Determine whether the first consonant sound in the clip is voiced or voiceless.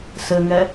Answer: voiceless